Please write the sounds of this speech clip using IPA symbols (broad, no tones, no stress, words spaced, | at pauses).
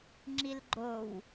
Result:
ŋ͡ǁilɡ͡ǃow